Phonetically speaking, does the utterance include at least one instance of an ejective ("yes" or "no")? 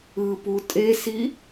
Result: yes